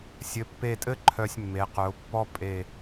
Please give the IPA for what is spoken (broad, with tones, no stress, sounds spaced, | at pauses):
sʲ ɘ˩˧ pː e˧˩ tʼ ɘ˥ ǃʰ œ˧ sʲ mː e˩˧ q œ˩˧ ʊ̯ pː ɔ˥ pʼ e˧˩